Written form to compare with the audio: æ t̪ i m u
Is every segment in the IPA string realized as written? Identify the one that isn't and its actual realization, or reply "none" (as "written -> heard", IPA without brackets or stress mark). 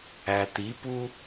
m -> p